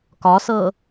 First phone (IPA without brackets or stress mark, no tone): k